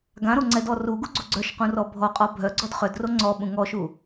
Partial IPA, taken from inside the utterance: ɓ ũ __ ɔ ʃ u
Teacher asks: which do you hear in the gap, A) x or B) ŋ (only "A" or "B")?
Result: B